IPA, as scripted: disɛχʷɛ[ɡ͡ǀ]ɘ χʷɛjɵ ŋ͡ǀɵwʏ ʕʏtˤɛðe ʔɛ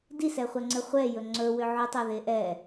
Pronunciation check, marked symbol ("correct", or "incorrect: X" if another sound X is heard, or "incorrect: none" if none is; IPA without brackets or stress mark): incorrect: ŋ͡ǀ